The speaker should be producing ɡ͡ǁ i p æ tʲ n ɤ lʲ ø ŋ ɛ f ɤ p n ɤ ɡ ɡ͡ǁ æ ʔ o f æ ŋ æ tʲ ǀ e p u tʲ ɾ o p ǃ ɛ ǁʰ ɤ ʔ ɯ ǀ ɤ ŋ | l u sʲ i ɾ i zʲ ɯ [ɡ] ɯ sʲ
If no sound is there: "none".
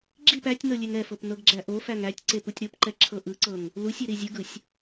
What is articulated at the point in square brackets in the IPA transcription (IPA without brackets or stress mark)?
ɡ